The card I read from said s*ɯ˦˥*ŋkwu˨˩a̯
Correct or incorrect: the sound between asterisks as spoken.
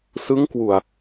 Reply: correct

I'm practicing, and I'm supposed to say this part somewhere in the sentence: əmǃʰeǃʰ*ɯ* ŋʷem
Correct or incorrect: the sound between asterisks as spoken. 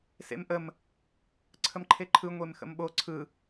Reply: correct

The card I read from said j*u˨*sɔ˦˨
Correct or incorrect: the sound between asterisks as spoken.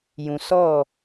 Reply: incorrect: ũ˨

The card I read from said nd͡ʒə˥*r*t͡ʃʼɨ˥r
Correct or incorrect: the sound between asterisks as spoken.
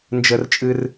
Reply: correct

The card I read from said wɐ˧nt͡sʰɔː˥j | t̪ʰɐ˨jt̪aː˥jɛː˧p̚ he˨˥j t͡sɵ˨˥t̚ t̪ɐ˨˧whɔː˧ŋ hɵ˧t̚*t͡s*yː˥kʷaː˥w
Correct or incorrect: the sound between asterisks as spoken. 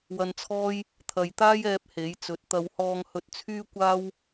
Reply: incorrect: t͡sʰ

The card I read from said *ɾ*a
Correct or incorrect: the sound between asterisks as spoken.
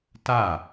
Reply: incorrect: t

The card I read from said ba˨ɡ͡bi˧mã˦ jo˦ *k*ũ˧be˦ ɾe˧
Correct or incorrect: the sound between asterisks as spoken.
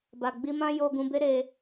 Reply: incorrect: ɡ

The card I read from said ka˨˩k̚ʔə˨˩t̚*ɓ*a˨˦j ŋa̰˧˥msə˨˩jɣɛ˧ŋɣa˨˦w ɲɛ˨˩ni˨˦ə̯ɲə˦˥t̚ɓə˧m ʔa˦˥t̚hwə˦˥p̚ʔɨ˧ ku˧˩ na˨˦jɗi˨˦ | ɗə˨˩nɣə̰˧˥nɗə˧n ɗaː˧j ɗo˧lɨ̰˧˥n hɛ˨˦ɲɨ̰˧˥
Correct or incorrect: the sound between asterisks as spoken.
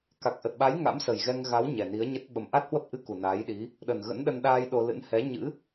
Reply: correct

